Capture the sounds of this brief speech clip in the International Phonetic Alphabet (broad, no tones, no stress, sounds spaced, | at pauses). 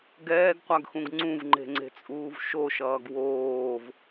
ɡ ɛː ɡ qʷ a ɡ x ũ ɡ ŋ͡ǀ ũ v ŋ͡ǃ e̤ ŋ͡ǀ e̤ t͡sʼ uː v ʃ o ʃ ʌː ɡ w oː v